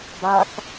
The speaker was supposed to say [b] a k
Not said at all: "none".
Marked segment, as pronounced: b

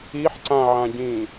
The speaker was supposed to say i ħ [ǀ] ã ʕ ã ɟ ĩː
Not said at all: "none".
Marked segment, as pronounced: ǀ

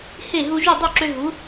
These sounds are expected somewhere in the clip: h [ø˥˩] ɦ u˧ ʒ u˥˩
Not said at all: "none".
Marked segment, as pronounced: e˥˩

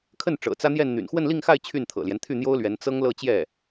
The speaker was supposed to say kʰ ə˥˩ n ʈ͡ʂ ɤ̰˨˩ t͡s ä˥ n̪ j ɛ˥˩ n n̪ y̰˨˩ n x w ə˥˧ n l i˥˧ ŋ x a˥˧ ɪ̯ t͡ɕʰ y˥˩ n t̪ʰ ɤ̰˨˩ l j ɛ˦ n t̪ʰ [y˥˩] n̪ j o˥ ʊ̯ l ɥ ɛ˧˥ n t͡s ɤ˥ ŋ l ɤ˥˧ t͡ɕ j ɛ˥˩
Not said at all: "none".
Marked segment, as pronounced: y˥˩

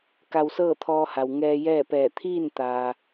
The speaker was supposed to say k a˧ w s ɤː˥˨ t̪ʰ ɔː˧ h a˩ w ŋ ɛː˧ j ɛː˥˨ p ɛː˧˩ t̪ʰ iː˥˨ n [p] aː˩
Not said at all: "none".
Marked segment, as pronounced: t̪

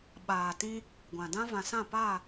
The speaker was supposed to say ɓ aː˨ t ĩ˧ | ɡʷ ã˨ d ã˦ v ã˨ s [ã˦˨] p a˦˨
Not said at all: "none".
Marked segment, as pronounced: ã˦˨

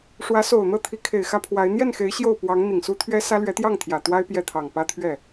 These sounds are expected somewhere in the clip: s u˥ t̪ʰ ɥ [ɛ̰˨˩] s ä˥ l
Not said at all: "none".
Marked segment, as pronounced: ɛ˥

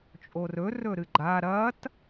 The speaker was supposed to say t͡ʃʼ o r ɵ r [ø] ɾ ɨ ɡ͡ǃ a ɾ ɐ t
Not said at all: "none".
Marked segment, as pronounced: ɵ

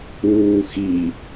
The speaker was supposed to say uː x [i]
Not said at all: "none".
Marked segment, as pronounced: i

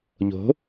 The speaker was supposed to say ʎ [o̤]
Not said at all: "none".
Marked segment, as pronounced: o̤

